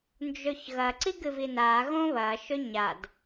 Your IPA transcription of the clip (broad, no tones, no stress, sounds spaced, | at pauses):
n d͡ʒ ɵ ç ɣ ɐ ǀ i ɡ ɨ v i n a ɣ õ β ɐ ʃ ɵ ɲ a d